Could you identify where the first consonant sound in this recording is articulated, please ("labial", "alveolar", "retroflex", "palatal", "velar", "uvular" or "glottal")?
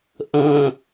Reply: glottal